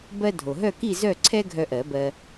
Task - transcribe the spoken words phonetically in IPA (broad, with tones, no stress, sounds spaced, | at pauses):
b ɜ˦ dʱ o˩ ɦ œ˦˨ k i˦˨ z œ˦˨ ǀʰ ɛ˦ ɡʱ œ˦ ʔ ɜ˨˩˦ b ɜ˦